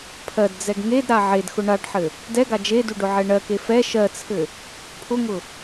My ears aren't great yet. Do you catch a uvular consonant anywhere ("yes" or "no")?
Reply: no